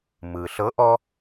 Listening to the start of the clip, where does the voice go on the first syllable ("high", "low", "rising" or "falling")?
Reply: low